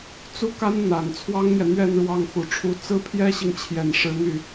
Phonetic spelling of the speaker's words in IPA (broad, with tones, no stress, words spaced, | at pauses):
t͡su˥˩ka˥nn̪a˨˩n t͡sʰwɑ˥ŋn̪jɛ˨n̪ɥɛ˥˧nɻwɑ˥˩ŋ xu˨˩ʈ͡ʂʰu˧˥ t͡sɹ̩˥pʰjɛ˥ɕi˨ŋt͡ɕʰjɛ˨˩n ʂɻ̩˧˥n̪y˥˩